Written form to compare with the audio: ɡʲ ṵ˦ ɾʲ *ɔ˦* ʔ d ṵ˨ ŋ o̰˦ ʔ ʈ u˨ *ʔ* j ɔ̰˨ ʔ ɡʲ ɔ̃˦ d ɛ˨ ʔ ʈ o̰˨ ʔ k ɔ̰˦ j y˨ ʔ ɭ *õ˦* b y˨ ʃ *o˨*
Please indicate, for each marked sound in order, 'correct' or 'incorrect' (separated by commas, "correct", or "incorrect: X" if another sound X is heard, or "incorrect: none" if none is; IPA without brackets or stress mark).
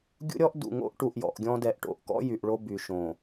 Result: correct, correct, incorrect: o˦, incorrect: õ˨